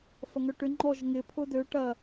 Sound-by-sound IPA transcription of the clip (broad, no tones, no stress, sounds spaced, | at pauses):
f ɐ ŋ œ ʈ ʏ ŋ͡ǃ ɔ ʒ ŋ ɪ pʰ ʊ d ø ʈ ɐ